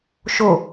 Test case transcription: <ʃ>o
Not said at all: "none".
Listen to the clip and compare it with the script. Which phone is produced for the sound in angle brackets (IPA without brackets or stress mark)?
ʃ